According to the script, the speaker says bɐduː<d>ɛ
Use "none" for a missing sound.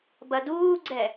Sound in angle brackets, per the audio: ɡ͡ǀ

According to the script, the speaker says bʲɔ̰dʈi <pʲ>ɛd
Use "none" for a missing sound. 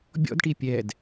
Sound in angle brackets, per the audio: pʲ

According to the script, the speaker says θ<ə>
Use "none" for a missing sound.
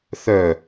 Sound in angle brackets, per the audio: œ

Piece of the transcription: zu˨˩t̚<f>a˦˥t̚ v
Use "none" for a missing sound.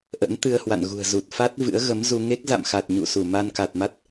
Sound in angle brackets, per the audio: f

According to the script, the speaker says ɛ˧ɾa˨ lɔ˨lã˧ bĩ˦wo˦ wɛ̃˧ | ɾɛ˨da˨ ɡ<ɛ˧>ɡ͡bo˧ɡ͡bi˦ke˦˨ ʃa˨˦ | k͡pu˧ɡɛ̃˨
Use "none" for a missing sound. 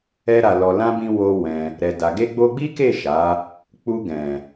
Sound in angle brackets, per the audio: e˧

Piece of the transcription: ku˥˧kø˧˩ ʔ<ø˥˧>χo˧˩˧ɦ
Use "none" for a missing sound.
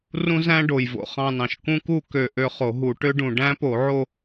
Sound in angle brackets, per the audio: ø˥˧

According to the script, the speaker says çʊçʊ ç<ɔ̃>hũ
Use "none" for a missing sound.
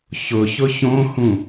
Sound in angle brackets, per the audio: õ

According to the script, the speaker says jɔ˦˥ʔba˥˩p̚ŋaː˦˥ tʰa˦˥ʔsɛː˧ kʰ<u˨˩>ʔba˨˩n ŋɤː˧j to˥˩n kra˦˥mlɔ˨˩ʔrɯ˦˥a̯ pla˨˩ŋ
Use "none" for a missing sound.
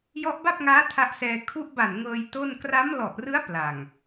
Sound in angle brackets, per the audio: u˦˥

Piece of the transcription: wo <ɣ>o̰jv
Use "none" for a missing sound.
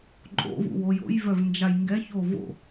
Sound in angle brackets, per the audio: j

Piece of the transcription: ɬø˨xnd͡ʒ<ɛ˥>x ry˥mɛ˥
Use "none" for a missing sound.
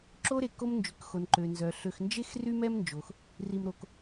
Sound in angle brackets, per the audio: e˥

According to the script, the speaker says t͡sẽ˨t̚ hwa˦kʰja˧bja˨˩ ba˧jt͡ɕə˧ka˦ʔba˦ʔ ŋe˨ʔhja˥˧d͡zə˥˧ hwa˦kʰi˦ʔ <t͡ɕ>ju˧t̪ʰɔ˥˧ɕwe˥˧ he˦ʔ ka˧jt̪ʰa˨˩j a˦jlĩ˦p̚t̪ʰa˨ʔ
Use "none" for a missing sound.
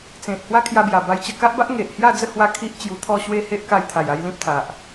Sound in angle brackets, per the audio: t͡ɕ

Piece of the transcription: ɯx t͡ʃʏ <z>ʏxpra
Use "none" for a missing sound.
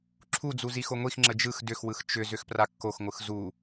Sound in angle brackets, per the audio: z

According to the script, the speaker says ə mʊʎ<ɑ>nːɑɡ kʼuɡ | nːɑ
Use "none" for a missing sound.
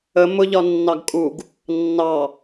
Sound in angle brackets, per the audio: ɒ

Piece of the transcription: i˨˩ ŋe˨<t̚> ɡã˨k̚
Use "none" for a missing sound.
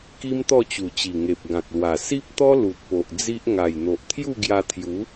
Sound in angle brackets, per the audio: p̚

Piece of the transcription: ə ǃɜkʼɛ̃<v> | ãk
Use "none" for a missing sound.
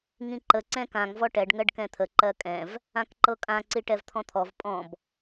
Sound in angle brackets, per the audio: v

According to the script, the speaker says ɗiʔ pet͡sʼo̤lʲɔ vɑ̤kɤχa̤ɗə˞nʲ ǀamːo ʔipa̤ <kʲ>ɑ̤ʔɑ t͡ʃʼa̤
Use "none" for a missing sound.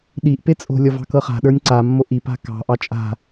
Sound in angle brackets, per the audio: k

